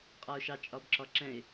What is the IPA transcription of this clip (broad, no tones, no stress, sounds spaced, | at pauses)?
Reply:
qʼ ɒ ʊ̯ ʃ ɑ t͡ʃʼ ɒ b ǁ ɒ ǁ ɛ̃ ɪ̯